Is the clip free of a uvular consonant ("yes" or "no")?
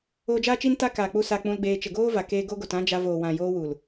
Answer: yes